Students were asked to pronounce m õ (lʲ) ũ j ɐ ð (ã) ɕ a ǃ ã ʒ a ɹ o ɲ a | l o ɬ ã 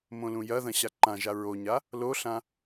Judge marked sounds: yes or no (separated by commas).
no, no